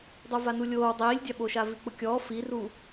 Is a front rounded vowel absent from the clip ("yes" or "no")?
yes